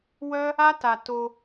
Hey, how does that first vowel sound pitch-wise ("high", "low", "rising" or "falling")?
high